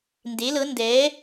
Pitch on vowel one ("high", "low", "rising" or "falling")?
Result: rising